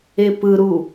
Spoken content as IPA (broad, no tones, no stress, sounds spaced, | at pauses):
e p ɯ ɾ u